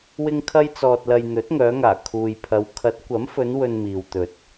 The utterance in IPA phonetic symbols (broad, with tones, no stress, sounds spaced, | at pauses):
w ɪ˥ ŋ kʰ ɐ˥ j t͡s ɔː˧ t̚ l ɐ˧ j n̪ ɵ˨˥ t̚ ŋ œː˨˧ ŋ aː˨˩ kʰ uː˨ j pʰ ɐ˨˧ w kʰ ɐ˨˥ t̚ kʷ ɐ˨˥ m f ɵ˨˧ n w ɵ˧ n m iː˨ w t̪ ɵ˨ t̚